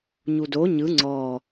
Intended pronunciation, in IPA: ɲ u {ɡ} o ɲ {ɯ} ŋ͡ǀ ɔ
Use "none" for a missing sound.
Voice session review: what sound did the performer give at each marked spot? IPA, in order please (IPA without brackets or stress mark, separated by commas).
d, ɯ